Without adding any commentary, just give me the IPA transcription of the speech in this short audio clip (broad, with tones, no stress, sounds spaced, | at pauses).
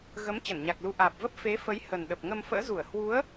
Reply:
ɣ ə˨˦ m t͡ɕ ə˧˩ n ɲ a˨˩ k̚ l u˨˦ ʔ aː˨˩ p̚ v ə˦˥ p̚ f e˨˦ f ə˨˦ j h ə˨˩ n ɗ ə˨˩ p̚ ŋ ə˧ m f ə̰ː˧˥ z u˧˩ ə̯ h w u˨˦ ə̯